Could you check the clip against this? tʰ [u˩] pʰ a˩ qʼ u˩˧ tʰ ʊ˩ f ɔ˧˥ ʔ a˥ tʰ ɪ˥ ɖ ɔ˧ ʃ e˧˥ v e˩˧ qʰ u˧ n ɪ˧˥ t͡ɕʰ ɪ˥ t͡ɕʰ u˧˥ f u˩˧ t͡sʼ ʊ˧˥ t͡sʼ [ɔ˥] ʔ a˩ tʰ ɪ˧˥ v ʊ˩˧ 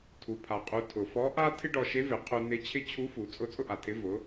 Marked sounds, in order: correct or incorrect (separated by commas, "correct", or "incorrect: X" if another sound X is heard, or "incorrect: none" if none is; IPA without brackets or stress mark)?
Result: correct, incorrect: ʊ˥